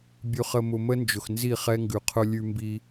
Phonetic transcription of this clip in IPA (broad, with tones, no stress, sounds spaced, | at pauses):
bʲ ʉ˨ χ ə˨ m ʊ˨ m ə˦ n d͡ʒ ʊ˨ x n z i˦˨ χ ɛ˦ ŋ ɡ ʉ˨ qʰ ʊ˦ lʲ ʉ˦ m b i˦